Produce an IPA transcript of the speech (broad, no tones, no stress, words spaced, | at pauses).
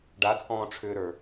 ɖat͡sʼɔ̃ːʈ͡ʂʰʏːɾə˞